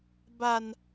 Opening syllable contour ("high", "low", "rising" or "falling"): high